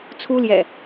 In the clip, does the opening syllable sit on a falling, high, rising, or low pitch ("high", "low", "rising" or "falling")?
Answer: high